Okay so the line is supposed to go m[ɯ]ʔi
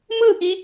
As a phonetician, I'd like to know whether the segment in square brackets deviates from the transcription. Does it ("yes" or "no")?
no